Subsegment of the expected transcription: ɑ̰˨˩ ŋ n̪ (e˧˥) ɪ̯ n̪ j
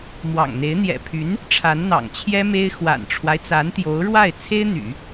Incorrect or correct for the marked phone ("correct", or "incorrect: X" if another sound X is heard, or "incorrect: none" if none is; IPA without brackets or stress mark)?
correct